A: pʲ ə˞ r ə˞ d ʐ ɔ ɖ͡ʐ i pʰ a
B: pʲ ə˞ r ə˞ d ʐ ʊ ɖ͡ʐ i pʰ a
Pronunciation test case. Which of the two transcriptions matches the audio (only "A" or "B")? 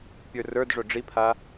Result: B